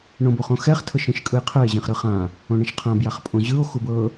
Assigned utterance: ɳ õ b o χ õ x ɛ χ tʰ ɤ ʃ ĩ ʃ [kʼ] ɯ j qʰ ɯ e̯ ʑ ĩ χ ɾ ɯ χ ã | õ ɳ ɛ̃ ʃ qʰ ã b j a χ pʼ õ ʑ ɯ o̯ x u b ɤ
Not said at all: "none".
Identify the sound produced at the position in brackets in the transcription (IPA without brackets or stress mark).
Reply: kʼ